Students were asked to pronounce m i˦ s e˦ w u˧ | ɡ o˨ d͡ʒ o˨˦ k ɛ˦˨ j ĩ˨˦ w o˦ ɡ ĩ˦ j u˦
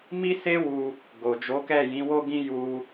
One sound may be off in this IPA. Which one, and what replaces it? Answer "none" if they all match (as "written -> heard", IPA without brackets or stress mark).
none